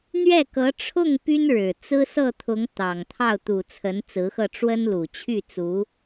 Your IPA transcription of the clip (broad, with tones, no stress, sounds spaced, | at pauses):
n̪ ɥ ɛ˥˩ k ɤ˧˥ ʈ͡ʂʰ ʊ˥˩ ŋ p y˥ n ɻ ɻ̩˨˩ t͡s ɹ̩˥ s ɤ˥˩ t̪ʰ ʊ˧˥ ŋ t̪ ɑ˨˩ ŋ t̪ʰ ɑ˥˩ ʊ̯ t̪ u˨˩ t͡sʰ ə˧˥ n t͡s ɹ̩˧˥ x ɤ˥˩ ʈ͡ʂ w ə˥ n l u˨˩ t͡ɕʰ y˥˩ t͡s u˧˥